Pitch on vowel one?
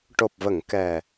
low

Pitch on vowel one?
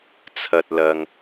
low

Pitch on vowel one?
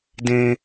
high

